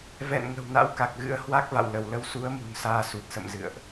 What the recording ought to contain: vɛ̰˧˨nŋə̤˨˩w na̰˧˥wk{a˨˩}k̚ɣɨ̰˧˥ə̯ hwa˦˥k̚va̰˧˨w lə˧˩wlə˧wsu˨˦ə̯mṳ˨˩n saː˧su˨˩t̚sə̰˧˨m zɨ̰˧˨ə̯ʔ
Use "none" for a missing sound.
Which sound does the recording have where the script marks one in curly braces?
a˨˩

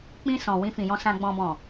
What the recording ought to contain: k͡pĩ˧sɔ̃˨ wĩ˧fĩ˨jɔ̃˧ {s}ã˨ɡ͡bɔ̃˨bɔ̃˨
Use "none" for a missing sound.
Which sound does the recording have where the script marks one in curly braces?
s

